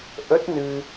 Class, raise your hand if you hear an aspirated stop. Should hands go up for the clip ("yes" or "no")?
no